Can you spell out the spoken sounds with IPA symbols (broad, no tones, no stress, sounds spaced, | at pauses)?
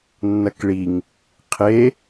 nː ɐ k ɭ i ŋ | qʰ e